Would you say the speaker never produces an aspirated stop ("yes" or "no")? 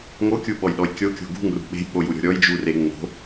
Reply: yes